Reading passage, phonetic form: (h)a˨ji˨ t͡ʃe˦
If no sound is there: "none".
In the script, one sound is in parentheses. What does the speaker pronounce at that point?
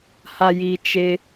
h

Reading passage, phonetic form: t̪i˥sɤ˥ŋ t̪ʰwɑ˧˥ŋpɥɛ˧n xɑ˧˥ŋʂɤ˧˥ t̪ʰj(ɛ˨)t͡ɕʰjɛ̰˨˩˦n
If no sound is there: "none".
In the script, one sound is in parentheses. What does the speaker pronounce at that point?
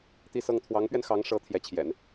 ɛ˧˥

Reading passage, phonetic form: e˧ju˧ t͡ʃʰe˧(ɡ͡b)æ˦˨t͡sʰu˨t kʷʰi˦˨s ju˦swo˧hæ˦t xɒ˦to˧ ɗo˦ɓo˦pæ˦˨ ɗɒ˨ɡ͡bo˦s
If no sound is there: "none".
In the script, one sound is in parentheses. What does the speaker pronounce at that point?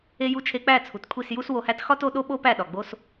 k͡p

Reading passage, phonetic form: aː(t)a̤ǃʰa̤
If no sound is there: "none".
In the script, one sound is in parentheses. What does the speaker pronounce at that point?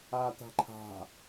t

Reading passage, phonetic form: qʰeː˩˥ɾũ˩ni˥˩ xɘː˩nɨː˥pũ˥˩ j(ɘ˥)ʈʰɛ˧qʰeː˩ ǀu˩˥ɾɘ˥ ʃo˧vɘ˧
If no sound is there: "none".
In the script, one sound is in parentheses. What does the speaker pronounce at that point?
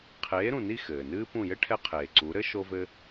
ɘ˥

